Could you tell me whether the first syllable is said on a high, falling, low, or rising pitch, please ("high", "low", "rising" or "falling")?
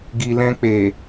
low